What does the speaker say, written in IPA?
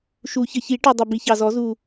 ʃ u˨˩˦ ç ə˨˩ ç i˨˩˦ ʈ u˨˩ dˤ ə˨˩ b i˨˩ ç ɑ˨˩ z ɔ˨˩˦ z u˨˩

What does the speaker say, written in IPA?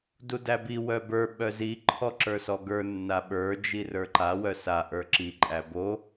d u d æ b i w œ b ə˞ ɓ œ z i ǃʰ ɔ ǁ ə˞ s ɔ ɡ ə˞ nː a ɓ ə˞ d͡ʒ i r ə˞ ǃ a w œ s a ʔ ə˞ ǁ i ǃʼ æ b o

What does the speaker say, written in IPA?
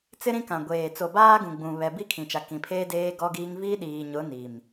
t͡s ɪ˦ ɾ ĩ˦ k ã˨ ɡʷ eː˨ t͡s o˨ b aː˦ ɡ ũ˨ ɡ͡b ũ˨ β ɛ˨ b i˦ kʰ ĩ˨ t͡ʃ a˨ k ĩ˨ pʰ eː˦ d eː˦ ɡ ɔ˦ ɡ iː˦ ŋ v i˦ ɗ iː˨ ɲ ʊ˨˦ n i˨ m

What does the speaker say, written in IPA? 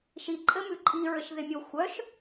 ʃ i ǃʼ ɘ m ʉ ǃʼ i ɹ ɘ ʃ ð ɪ mʲ o xʷ œ ʃ

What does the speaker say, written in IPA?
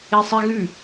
e sˤ e ɣ ʉ

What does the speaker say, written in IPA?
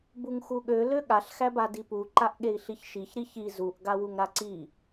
b u ŋ x u ɠ ø l ø ɠ a ɬ x æ b a d i p u ǃ a ʔ ɠ e i̯ ɬ i ç ʃ i ç ɾ i ç i z u ʔ ɡ a w u ŋ ɾ a ǀ i

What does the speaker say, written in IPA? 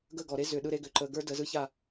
ɡ ə˦˨ ɡ ɔ˨ ɾ e˦ z ʏ˨ ɗ ɯ˧ ɾ e˧ ɡ ʏ˨ ǃ ə˧ ɡ ə˞˦ d ə˧ z ɯ˦ ç a˦˨

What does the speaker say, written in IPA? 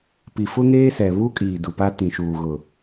p i˨ f ʊ˦ ŋ eː˦ s ɛ˨ β u˦ kʼ iː˨ d u˨ p a˦ t ĩ˨ ʃ uː˨ ɣ ʊ˨

